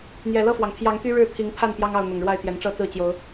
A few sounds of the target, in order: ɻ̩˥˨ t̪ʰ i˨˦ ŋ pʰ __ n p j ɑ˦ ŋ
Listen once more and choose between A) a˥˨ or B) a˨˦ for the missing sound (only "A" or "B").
A